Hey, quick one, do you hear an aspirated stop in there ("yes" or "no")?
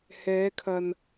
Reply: yes